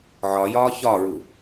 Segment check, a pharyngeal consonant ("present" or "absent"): present